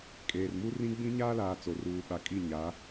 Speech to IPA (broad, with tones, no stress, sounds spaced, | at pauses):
kʼ eː˨ r m u˦ r ĩ˦ ɡ͡b ĩ˦ ɲ aː˦ l aː˨ t͡s o˨ r uː˨ ɓ a˨ kʼ i˦˨ ɲ a˨˦